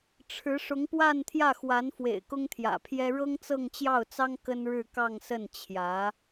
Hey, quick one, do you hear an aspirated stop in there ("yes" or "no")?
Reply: yes